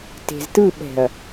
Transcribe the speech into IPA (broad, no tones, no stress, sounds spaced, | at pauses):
t e̤ z t ɯ ɓ ɛ̤ ɐ̯